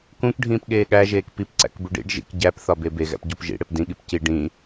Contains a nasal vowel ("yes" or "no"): yes